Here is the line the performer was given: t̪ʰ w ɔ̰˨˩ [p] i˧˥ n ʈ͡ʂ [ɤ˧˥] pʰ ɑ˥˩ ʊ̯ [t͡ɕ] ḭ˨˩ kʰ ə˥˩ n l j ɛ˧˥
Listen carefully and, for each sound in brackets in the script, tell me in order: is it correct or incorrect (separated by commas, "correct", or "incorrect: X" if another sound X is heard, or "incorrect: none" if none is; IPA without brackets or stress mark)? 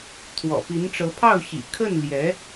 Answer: correct, correct, incorrect: ɕ